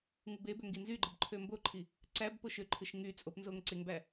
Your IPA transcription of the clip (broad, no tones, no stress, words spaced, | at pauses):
ŋubebø ŋɡinzyɡ͡ǃɯb ǃʰømboǃʰi | ǀæbpoʃ øǃʰɯʃ ŋy t͡sʼopnzoŋ ǀeŋbæ